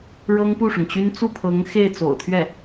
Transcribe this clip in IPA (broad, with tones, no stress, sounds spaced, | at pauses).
ɻ ɤ˥ ŋ p u˥˩ ʂ ʊ˩ ŋ t͡ɕ y˥ n t͡s u˥˩ pʰ ɤ˧˥ ŋ x e˥˩ ɪ̯ t͡s o̰˨˩ ʊ̯ t̪ʰ ɥ ɛ˥˩